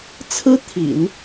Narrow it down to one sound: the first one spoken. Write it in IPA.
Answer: t͡sʰ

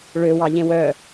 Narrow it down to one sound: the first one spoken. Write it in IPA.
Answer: ɭ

